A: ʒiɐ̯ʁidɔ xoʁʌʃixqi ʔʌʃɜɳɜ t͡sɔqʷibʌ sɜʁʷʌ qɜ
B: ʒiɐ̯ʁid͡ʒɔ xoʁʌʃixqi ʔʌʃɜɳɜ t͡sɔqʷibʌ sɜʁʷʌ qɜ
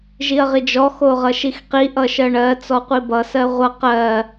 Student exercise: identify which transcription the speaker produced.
B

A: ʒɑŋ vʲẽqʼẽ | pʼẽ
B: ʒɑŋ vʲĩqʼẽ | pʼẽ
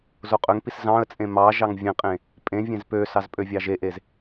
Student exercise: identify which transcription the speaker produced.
A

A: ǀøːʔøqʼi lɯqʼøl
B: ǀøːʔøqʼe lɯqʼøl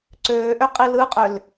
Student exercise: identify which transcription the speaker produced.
A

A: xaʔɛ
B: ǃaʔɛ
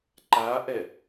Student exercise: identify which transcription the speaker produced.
B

